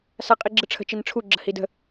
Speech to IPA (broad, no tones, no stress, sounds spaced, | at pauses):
s a qʼ i ɡ͡ǁ ɯ ʈ͡ʂʰ ə̤ t͡ʃ i n ʈ͡ʂʰ u ɡ͡ǁ ə h i d ə̤